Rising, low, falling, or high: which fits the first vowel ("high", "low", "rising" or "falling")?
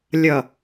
low